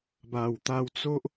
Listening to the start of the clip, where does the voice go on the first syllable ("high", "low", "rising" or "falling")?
low